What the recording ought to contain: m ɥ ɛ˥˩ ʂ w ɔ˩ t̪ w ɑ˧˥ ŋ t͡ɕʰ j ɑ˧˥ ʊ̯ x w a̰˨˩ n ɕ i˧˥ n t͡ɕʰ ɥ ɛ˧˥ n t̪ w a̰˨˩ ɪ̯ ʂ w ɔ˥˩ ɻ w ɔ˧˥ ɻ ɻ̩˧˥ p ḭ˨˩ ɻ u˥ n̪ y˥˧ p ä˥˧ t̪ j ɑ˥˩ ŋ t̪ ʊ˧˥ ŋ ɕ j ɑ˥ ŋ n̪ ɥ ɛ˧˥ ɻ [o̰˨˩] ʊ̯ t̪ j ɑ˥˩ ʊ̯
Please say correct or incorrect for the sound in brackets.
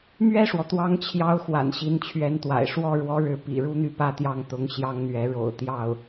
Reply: correct